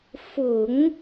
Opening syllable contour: low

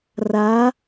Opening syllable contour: rising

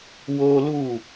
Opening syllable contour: high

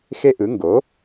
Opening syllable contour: high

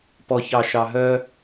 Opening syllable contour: low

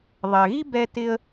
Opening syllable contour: low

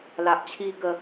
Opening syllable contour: low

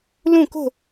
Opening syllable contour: falling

